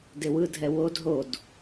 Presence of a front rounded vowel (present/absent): absent